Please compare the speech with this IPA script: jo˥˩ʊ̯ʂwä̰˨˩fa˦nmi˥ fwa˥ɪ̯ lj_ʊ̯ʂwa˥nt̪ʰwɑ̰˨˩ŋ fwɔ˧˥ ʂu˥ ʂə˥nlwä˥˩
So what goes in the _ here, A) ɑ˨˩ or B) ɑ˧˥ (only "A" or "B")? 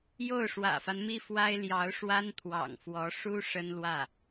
B